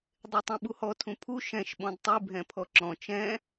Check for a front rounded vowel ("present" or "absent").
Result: present